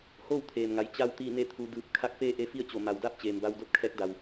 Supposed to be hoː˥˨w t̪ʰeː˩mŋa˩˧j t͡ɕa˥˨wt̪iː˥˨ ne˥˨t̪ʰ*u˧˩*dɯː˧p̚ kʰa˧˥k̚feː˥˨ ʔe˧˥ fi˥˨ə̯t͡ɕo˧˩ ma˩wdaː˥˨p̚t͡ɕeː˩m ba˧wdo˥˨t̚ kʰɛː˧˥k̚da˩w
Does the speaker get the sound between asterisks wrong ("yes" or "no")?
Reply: yes